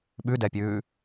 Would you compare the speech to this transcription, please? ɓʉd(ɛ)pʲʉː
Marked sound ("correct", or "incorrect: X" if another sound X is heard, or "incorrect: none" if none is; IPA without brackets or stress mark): correct